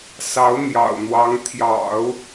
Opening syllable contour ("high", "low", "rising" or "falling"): rising